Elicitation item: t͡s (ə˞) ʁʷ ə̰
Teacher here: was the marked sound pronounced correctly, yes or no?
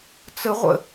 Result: no